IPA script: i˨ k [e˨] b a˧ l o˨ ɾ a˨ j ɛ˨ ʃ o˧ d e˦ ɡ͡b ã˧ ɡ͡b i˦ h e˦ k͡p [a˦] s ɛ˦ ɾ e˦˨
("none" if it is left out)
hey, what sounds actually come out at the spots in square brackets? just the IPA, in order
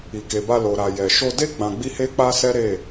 e˨, a˦

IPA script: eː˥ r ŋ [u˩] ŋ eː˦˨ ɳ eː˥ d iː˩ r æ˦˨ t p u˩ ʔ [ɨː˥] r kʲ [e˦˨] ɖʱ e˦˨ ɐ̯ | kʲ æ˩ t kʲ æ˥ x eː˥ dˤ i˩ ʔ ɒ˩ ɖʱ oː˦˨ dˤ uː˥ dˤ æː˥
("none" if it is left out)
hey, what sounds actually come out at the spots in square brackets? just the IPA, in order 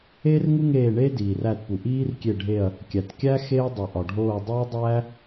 u˥, iː˥, e˦˨

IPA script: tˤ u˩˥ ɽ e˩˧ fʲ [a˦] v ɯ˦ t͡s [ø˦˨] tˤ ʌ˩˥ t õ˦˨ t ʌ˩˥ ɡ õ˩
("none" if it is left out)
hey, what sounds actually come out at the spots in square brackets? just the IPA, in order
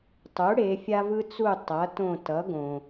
a˦, u˦˨

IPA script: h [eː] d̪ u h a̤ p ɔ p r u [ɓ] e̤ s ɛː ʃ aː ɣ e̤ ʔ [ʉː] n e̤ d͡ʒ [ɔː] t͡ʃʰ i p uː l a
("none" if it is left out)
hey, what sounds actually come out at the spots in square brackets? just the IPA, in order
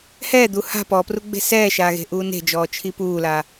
ɛː, ɡ͡b, uː, ɔː

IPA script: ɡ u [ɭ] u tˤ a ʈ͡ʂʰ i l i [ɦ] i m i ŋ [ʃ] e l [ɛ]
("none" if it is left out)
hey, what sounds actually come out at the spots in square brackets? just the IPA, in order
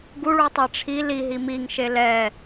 ɭ, ɦ, ʃ, ɛ

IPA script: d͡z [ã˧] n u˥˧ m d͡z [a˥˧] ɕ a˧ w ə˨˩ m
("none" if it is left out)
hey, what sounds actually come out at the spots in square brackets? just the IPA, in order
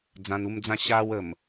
ã˧, ã˥˧

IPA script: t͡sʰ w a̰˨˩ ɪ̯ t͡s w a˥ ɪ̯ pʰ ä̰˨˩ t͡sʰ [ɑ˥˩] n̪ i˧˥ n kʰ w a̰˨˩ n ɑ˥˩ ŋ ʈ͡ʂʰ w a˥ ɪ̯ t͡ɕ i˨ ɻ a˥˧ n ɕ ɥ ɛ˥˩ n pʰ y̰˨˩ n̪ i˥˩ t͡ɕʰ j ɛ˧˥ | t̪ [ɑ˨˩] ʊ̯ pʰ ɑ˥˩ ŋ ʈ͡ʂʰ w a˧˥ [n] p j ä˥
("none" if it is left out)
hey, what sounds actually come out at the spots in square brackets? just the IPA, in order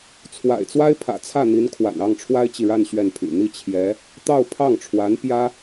ä˥˩, ɑ˥˧, n

